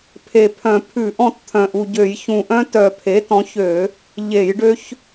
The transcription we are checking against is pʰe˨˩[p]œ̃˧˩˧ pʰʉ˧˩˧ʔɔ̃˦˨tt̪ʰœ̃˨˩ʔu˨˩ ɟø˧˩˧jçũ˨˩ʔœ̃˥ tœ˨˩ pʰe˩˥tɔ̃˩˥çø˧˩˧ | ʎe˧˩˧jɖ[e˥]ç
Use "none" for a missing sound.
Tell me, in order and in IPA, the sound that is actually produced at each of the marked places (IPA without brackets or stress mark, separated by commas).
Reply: pʰ, ø˥